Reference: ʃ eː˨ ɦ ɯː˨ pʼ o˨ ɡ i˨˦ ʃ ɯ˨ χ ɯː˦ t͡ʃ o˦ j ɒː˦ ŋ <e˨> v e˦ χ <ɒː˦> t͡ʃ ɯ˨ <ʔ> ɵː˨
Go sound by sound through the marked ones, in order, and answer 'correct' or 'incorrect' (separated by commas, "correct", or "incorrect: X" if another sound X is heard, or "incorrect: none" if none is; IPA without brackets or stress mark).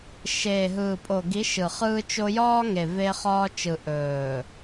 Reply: correct, correct, correct